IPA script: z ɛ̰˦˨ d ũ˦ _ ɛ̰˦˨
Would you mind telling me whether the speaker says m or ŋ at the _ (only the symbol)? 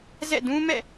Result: m